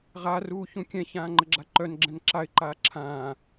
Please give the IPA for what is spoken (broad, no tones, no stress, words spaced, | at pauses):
ʁaruː çũkʲɛ̃çãː ŋ͡ǃəɡ͡ǁaǃœnɡ͡ǁɛ̃n ǁaɪ̯ǃaː ǁʰãː